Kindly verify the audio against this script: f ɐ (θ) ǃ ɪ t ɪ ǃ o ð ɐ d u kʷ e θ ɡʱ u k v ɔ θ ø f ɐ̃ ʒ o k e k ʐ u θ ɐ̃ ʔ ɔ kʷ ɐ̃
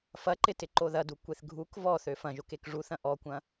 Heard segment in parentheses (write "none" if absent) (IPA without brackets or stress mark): none